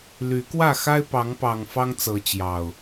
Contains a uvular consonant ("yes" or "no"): no